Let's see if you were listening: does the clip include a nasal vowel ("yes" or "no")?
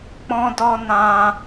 yes